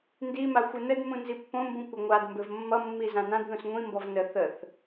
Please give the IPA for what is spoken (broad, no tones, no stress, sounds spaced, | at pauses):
n d i m a xʷ ɘ n ə d m ũ n z i pː õ m b ũ kʷ ɘ ŋʷ a d m b ɘ v mː ʌ mː i z ã n ã d ð ũ s ŋʷ ĩ m b ɔ v n ə θ ə θ